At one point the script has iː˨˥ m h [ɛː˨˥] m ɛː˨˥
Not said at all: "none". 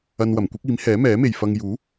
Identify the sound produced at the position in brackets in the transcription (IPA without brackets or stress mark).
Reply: ɛː˨˥